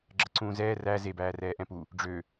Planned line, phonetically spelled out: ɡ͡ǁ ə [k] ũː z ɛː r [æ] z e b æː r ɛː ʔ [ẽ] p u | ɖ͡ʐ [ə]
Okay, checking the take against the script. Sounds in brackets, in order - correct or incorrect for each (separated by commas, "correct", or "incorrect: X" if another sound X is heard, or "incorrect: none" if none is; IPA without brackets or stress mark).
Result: incorrect: ǀ, correct, incorrect: ɛ̃, incorrect: ø